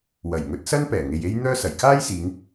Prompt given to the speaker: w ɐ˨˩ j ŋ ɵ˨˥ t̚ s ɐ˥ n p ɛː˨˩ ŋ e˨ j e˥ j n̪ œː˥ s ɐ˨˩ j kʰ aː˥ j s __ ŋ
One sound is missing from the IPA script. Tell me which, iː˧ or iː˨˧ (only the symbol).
iː˨˧